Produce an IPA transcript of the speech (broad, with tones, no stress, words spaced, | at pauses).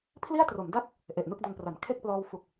pʰli˥˩a̯tro˩˦mda˥˩k̚ | ʔe˨˩ʔ nɯ˥˩k̚do˧npra˩˦n kʰe˥˩k̚plɔː˧w fu˨˩k̚